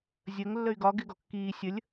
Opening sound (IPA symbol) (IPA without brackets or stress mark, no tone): zʲ